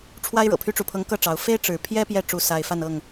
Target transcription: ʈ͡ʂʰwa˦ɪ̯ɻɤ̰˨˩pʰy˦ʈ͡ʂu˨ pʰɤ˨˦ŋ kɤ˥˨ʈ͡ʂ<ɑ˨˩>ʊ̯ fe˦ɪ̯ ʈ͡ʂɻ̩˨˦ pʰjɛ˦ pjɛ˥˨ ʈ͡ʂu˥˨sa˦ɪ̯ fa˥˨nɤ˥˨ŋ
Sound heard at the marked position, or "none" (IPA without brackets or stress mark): ɑ˨˦